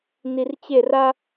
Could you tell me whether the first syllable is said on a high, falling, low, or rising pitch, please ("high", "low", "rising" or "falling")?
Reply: low